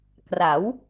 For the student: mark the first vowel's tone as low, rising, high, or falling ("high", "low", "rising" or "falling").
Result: rising